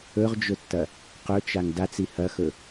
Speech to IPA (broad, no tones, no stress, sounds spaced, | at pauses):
ɵ ʁ d͡ʒ ɵ tː ɐ | q ɵ t͡ʃ a ŋ d a t͡s i h ɐ x ɵ